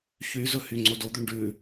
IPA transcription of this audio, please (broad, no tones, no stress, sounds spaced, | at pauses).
ç y z ɵ h y ŋ͡ǀ o d o d̪ ʉ ɳ ɖ ʉ